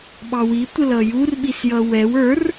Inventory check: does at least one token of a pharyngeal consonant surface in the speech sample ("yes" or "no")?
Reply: no